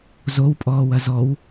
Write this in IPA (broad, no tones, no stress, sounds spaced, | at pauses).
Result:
z o w pʼ ɔː w ɐ z ɔ w